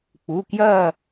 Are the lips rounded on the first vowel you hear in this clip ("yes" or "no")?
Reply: yes